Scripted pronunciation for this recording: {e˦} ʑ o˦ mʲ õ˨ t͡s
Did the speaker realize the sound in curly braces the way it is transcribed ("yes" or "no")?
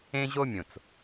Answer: no